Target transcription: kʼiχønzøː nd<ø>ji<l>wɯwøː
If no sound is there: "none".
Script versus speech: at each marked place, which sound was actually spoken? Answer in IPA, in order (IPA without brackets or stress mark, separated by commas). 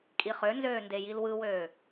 e, l